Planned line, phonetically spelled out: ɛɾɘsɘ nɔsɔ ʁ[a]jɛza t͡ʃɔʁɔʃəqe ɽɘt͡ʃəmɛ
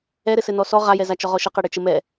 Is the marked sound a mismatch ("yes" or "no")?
no